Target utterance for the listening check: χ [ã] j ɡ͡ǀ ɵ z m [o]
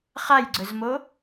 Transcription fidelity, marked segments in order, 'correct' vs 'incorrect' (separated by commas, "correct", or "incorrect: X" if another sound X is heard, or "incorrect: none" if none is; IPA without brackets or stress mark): incorrect: a, correct